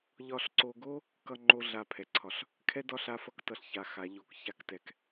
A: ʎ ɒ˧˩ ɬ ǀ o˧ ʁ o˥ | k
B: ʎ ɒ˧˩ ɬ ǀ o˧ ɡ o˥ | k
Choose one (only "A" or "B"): B